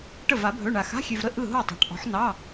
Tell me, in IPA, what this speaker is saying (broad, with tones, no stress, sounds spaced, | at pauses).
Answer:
ʈ ə˥˨ v a˨˥ bʱ ɵ˧˥˧ ɳ a˧ x a̤˧˥˧ xʲ ø˧ v ɾ ə˥˨ ʔ ɯ˥˨ ɦ o˥˨ tˤ a̤˨˥ ʈ ʔ ɔ̤˨˥ ħ n ɑ˧˥˧